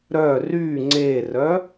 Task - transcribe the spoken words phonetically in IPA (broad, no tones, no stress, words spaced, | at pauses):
ɾœ ry ŋ͡ǀerœ